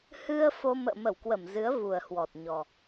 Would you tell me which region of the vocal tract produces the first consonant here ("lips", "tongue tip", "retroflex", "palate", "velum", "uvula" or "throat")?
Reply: throat